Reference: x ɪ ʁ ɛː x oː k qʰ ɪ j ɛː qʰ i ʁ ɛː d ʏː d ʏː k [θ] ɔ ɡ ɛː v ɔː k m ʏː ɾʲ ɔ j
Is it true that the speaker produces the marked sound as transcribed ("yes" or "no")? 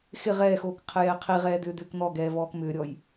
no